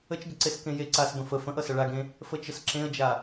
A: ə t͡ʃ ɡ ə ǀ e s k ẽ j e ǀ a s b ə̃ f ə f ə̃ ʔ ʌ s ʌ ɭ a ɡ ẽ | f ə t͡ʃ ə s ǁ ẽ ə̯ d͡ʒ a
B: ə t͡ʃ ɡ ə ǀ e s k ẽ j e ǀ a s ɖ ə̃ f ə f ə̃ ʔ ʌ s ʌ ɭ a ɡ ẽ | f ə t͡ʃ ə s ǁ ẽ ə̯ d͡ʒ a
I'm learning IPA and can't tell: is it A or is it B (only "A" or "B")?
A